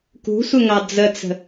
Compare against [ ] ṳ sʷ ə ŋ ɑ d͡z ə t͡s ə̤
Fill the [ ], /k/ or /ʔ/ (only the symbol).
k